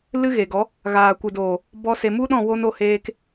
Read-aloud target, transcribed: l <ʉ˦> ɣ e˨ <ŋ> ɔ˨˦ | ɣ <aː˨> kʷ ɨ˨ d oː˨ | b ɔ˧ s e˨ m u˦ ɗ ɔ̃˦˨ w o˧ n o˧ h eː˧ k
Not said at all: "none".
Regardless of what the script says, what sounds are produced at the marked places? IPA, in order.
ɨ˦, ɡ, aː˨

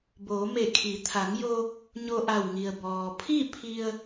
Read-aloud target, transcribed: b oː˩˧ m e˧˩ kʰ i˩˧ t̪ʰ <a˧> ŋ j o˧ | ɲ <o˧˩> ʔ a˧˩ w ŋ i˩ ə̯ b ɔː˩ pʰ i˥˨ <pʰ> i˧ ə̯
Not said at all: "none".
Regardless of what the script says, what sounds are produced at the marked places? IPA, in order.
a˩˧, o˧, pʰ

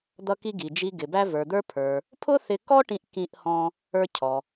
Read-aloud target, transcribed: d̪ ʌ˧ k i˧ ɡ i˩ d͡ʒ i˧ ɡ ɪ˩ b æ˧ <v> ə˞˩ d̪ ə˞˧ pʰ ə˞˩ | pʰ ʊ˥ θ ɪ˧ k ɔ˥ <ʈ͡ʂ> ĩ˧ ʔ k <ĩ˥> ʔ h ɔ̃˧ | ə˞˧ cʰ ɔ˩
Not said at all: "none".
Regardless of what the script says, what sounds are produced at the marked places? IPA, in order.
v, ʈ, ĩ˧

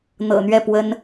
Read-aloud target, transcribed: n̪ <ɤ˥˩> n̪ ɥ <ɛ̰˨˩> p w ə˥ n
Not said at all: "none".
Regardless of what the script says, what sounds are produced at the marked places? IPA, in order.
ɤ̰˨˩, ɛ˥˩

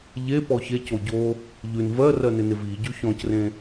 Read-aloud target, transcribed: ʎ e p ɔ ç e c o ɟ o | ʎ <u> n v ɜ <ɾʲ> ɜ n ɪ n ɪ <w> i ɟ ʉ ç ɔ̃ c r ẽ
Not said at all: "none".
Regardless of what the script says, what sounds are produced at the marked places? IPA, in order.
ʉ, r, v

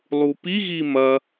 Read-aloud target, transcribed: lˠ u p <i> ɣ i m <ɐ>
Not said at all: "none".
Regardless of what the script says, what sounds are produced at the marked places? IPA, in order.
i, ɐ

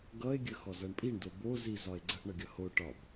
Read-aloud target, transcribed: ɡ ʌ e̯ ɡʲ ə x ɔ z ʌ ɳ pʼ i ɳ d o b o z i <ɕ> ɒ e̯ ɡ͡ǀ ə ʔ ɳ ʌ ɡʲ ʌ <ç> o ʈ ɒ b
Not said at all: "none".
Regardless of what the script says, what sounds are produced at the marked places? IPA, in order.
z, h

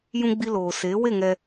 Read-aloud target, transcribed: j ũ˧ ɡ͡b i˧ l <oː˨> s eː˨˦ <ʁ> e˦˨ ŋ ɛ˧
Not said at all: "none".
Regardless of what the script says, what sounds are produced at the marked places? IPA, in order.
oː˨, w

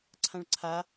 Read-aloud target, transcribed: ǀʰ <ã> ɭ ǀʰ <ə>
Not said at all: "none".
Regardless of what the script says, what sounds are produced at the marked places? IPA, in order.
ã, a

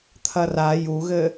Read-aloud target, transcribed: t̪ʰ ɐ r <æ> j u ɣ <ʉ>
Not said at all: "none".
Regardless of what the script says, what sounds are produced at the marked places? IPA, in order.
a, ɘ

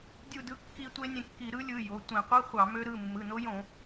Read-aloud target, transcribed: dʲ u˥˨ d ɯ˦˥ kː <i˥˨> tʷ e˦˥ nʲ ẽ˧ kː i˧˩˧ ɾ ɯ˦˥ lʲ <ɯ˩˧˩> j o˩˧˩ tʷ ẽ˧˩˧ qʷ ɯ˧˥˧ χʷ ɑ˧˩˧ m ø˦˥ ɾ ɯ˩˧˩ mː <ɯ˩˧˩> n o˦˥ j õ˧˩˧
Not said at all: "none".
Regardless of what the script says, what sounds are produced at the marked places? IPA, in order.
i˧, ɯ˩˧˩, ɯ˩˧˩

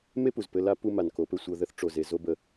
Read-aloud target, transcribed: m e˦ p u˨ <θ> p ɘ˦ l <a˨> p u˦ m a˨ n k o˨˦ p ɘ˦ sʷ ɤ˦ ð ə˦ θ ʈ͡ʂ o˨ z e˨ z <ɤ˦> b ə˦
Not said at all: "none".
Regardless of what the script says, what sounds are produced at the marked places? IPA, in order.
z, a˦, o˦

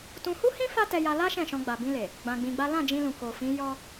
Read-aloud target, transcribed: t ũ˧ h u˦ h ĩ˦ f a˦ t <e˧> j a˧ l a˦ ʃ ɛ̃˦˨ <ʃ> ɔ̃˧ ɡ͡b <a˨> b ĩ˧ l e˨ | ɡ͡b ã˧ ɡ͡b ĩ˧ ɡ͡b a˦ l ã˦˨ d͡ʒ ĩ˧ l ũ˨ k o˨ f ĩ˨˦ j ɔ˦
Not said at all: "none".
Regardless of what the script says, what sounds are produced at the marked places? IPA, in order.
ɛ˧, ʃ, a˨

